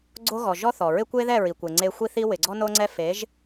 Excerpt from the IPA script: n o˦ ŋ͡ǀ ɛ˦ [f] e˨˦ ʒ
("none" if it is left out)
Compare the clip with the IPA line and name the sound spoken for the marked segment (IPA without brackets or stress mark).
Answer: f